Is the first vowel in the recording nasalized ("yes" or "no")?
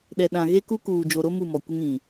no